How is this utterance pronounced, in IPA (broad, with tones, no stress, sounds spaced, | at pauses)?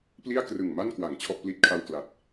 p l i˥˩ a̯ k r ɯ˨˩ ŋ m a˥˩ n k w a˩˦ ŋ t͡ɕʰ ɔ˥˩ ʔ p l i˥˩ t̚ kʰ a˥˩ w k l a˨˩ t̚